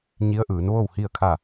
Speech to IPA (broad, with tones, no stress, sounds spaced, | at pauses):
ɲ i˧˥ ə̯ ʔ ɯː˩˧ n ʋ o˥˨ w h i˥˨ ə̯ kʰ a˥˨